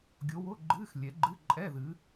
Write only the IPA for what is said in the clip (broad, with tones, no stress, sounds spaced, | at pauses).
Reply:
ɡʲ o˨˦ w ʊ˧˥˧ ɡ͡ǃ ɨː˧˥˧ x lʲ ɛ˨˦ ɡ͡ǃ ɨ˧˥˧ ǃʼ ɛ˧˥˧ ð ɨ˨˦